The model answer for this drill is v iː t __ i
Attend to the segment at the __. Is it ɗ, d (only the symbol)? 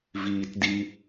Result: d